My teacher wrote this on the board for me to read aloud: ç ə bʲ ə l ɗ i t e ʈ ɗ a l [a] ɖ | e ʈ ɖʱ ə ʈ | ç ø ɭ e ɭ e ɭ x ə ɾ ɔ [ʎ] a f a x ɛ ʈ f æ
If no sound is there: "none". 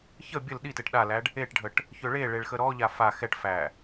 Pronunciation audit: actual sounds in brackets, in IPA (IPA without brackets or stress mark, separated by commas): æ, ʎ